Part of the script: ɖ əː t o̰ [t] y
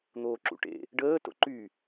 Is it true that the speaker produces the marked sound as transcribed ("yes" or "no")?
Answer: no